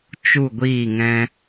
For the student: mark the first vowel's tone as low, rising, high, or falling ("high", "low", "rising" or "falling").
falling